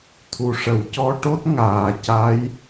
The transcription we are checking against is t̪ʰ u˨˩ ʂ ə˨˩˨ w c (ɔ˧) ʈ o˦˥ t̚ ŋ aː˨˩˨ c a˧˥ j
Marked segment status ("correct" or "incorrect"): correct